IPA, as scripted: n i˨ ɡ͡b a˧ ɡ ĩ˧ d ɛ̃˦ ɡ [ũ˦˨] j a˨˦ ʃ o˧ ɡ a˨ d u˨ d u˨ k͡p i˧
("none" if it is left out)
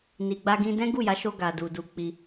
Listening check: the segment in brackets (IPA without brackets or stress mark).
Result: u˦˨